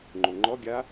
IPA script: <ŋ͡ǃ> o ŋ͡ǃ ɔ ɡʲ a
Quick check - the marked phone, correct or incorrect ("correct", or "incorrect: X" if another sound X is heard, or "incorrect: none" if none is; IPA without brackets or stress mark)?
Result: correct